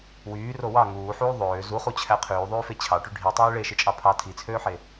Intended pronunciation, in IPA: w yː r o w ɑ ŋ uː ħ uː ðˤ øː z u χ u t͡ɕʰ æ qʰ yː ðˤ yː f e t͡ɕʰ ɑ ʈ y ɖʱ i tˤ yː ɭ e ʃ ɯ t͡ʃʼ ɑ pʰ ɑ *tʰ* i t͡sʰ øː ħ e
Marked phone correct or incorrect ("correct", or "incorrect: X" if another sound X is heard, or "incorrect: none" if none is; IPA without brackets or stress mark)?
correct